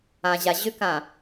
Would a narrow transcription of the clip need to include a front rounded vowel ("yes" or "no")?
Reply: yes